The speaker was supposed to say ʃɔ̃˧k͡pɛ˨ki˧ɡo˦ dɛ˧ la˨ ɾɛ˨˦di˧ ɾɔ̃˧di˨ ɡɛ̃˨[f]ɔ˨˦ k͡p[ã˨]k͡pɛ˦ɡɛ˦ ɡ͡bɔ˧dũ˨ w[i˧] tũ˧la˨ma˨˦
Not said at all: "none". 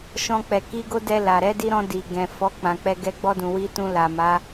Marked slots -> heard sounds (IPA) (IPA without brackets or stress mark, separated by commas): f, ã˧, i˧